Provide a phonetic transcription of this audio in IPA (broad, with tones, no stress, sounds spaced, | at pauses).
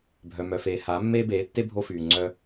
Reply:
bʱ œ˨ m œ˨ f eː˨ h a˨˦ mː eː˦ b eː˨˦ tː e˦ bʱ o˦ f yː˨ ŋ͡ǀ œ˦